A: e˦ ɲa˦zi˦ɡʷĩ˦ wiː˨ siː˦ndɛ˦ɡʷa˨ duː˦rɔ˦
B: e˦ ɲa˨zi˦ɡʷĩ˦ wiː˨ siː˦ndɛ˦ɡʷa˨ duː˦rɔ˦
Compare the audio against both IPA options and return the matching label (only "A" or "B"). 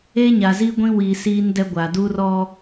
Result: B